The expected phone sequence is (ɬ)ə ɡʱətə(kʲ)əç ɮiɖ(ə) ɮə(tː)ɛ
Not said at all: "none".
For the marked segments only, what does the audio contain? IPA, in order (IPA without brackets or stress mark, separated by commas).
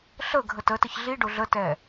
ɬ, t, ʊ, t